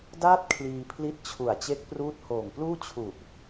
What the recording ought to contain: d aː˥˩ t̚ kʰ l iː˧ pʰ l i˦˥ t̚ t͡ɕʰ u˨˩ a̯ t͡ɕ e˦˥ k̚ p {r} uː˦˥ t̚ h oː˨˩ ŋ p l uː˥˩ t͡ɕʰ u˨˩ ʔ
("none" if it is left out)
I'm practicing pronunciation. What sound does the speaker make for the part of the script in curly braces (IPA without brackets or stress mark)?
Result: r